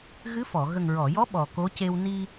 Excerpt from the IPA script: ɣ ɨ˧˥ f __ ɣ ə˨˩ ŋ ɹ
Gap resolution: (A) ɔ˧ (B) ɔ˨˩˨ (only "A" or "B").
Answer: B